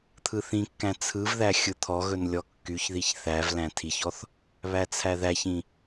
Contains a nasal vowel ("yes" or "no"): yes